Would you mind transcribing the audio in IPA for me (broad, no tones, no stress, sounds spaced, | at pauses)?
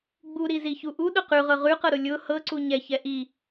ɡ͡b u ɾ i z i ç u ʔ u ɗ ʊ q ʉ ʁ ɤ ʁ ʉ q ɤ ɾ ʊ lʲ ʊ h ɤ ǀ u ɲ ɛ ç ɛ ʔ i